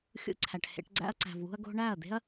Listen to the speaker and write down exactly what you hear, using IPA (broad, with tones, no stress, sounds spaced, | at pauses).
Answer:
xʲ ṵ˧ ǀʰ æ˨ ʈ h ḛ˧ ʈ ɡ͡ǀ æ̰˧ ɐ̯ ǀ æ̤˨ v w ṳ˧ ɐ̯ ɡ o̤˧ ɳ æ˦˨ ɐ̯ d̪ e̤˦ ɐ̯